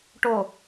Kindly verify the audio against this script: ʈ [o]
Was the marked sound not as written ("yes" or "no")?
no